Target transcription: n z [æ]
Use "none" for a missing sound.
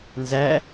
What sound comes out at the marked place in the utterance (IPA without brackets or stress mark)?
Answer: æ